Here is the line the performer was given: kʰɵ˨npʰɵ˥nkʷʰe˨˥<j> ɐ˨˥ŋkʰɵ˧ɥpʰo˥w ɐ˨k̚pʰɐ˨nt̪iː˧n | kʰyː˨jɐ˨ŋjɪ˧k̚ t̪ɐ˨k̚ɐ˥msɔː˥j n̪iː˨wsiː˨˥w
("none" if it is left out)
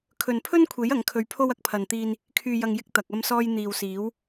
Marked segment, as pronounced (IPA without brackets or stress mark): j